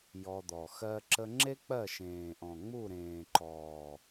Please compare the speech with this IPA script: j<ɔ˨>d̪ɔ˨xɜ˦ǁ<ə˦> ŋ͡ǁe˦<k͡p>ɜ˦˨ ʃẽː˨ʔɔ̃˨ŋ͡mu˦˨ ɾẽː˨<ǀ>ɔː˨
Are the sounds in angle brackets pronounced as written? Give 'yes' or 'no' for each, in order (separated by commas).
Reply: no, yes, yes, no